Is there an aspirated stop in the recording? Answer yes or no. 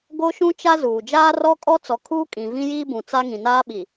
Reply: yes